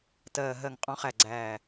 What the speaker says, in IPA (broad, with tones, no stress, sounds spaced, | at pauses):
t ɜː˨˩ ɦ ɜ˨˩ ŋ qʼ ɔ̃˨˩˦ χ æ˨˩ ɡ͡ǀ æː˨˩